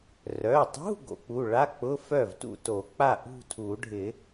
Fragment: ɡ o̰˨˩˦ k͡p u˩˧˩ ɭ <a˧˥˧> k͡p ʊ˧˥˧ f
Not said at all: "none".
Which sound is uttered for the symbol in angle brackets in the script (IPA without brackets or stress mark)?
a˧˥˧